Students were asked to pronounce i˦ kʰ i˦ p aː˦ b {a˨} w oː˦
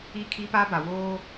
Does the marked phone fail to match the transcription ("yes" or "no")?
no